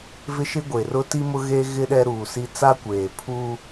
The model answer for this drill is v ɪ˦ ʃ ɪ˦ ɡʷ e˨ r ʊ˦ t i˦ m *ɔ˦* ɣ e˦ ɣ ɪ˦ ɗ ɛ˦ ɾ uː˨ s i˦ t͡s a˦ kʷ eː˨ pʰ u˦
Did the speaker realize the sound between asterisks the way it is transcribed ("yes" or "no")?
no